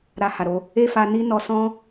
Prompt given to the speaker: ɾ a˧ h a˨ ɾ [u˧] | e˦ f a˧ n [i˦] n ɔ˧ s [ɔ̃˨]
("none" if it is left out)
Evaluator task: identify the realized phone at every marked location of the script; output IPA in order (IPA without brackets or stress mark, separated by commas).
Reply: o˧, i˦, ɔ̃˦